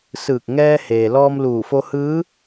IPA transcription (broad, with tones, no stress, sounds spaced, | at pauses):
s ɯː˧˩ k̚ ŋ ɛː˧ h eː˩ l ɔː˧ m l uː˧˩ f o˧ h ɯː˧˥